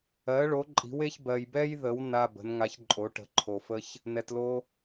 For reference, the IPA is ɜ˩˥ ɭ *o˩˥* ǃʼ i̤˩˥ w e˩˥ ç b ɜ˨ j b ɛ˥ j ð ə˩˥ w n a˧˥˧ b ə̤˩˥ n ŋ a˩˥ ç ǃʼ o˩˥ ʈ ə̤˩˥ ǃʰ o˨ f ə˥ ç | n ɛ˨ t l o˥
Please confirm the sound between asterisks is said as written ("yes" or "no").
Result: yes